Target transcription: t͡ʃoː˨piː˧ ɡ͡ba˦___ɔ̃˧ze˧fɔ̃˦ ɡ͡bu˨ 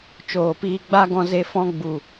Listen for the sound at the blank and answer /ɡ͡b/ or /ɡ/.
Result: ɡ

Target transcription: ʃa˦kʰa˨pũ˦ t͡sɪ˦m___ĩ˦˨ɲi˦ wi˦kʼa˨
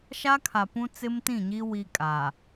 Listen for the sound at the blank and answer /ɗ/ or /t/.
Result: t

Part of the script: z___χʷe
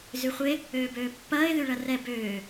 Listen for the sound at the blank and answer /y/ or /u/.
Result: y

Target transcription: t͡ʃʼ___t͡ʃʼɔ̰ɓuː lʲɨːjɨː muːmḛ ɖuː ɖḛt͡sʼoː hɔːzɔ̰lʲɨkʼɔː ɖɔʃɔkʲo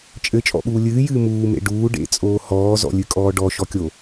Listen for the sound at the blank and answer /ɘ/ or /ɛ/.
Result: ɘ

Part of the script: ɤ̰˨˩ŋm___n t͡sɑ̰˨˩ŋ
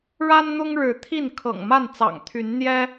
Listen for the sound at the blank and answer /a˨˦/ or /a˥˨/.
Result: a˥˨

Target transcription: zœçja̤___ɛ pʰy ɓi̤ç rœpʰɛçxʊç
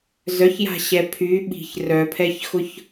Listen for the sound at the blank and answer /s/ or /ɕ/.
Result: ɕ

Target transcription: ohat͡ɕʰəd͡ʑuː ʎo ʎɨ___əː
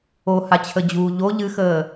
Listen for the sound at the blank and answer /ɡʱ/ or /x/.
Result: x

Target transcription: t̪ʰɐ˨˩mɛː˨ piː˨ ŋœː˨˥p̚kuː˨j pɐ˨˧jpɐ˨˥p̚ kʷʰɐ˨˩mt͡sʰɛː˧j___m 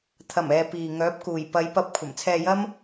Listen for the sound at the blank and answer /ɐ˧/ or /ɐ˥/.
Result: ɐ˥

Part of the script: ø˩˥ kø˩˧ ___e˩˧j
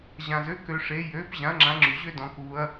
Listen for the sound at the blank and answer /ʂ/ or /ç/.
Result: ʂ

